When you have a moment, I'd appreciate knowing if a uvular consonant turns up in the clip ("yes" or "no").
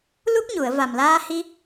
no